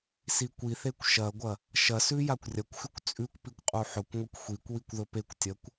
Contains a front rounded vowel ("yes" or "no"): no